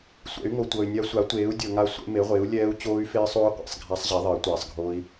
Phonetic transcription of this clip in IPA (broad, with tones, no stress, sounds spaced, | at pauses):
sʷ ɛ̰˩˥ y̯ ŋ o˨ tʷ ɤ˨ y̯ nʲ a˦˥ sʷ a˩˥ tʷ eː˩˥ u̯ dʲ ɤ˨ ŋ a˦˥ sʷ ḛ˦˥ m e˩˥ ʁʷ ɪː˩˥ u̯ lʲ ɛː˦˥ u̯ t͡ɕ oː˦˥ y̯ f ɪː˦˥ sˤ oː˦˥ qʷ ḛ˨ sˤ ɡʱ a˦˥ sˤ ʑ ɛ˩˥ ðˤ ɪː˩˥ tʷ ɛː˨ sˤ ɡʱ oː˦˥ i̯